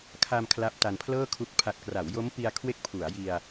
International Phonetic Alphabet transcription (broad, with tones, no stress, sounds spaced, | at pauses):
kʰ a˧ m kʰ l a˦˥ p̚ t a˧ n pʰ l ɤː˥˩ kʰ u˦˥ k̚ pʰ a˨˩ t̚ k r a˩˦ w j o˦˥ m p i˧ a̯ kʰ w e˦˥ k̚ pʰ u˩˦ a̯ j i˧ a̯